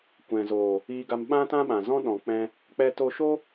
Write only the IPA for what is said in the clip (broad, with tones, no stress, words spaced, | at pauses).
kʷɛ̃˨zoː˨ | iː˧ɡa˧m ɓã˦tã˦ɓã˨zɔ̃˦ ɗɔ̃˨k͡pɛ̃˧ | k͡pɛ˧to˧ʃo˦